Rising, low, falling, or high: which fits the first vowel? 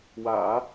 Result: low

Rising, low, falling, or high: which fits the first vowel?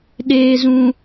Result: low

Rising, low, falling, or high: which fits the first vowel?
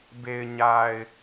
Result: low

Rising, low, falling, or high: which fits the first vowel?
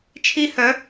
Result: high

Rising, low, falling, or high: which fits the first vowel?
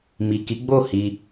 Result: low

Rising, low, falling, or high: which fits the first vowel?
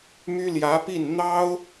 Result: high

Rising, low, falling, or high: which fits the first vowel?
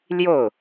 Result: falling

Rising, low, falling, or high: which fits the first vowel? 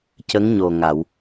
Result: rising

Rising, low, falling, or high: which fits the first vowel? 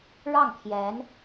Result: falling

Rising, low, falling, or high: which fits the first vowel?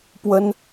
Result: high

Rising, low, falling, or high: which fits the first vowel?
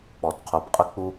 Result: low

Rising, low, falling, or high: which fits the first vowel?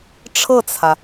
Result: falling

